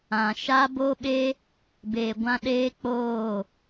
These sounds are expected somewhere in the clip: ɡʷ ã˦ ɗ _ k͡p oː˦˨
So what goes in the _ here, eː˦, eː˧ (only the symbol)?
eː˦